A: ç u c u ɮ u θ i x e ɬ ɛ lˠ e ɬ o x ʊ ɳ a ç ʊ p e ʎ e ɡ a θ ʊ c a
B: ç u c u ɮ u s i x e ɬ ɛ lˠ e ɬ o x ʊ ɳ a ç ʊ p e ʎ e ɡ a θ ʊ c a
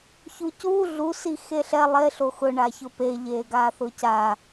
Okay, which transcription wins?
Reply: B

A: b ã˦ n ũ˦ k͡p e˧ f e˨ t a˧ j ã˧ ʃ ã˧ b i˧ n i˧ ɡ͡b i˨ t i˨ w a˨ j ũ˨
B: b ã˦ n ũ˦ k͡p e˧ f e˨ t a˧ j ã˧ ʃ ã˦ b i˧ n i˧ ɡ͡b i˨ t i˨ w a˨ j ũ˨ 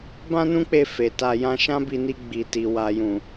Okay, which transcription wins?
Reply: B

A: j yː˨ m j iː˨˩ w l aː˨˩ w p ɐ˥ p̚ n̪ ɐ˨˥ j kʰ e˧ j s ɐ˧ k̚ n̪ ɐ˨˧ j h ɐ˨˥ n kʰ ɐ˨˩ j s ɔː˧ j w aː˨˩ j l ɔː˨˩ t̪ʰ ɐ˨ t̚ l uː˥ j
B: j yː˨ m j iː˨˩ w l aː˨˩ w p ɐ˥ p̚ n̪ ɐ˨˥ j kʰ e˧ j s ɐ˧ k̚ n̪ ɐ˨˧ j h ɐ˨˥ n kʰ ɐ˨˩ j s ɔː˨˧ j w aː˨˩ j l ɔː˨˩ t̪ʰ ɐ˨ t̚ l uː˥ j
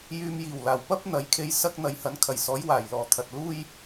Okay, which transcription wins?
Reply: B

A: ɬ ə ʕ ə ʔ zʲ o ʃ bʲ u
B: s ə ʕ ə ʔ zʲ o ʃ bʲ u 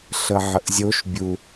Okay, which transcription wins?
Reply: A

